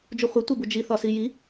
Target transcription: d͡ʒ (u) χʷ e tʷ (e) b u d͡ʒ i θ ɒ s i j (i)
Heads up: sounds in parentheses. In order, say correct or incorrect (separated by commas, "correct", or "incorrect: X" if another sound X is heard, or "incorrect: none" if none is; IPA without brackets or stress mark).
correct, correct, correct